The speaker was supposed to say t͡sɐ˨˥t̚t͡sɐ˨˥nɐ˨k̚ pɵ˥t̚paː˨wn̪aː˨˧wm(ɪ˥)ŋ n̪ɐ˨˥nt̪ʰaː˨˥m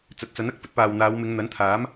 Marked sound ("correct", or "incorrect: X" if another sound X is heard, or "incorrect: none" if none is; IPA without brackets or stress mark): incorrect: ɪ˨˧